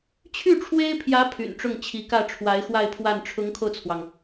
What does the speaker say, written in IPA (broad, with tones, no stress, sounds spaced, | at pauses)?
t͡ɕʰ y˥˩ ʈ͡ʂʰ w e˥ ɪ̯ pʰ j ä˧˥ pʰ y̰˨˩ n ʈ͡ʂ ʊ˥˩ ŋ t͡ɕʰ i˧˥ k ä˥˩ ʈ͡ʂʰ w a˧˥ ɪ̯ x w a˥˧ ɪ̯ pʰ w a˥˩ n ʈ͡ʂʰ ʊ˧˥ ŋ kʰ o˧ ʊ̯ t͡sʰ w ɑ˩ ŋ